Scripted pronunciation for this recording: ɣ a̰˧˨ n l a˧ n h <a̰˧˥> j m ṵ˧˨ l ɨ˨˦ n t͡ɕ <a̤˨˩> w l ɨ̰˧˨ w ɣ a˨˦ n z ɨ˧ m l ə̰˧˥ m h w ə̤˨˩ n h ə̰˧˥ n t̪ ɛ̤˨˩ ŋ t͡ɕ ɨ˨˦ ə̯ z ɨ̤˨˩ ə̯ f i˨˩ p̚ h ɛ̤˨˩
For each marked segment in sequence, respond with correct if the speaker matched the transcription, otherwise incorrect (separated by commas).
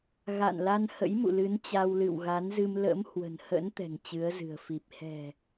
incorrect, incorrect